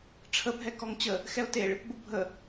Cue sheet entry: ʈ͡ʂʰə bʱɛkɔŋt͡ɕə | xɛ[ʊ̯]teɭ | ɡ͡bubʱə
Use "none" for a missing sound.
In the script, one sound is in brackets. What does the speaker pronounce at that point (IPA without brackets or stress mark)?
ʊ̯